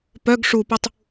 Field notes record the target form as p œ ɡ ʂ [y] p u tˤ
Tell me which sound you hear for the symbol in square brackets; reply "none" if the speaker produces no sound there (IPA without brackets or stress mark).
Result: u